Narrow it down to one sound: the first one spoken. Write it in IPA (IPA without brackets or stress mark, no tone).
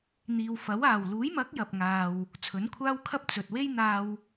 n̪